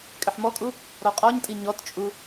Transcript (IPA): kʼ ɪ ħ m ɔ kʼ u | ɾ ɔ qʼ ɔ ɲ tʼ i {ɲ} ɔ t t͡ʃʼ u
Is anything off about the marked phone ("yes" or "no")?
no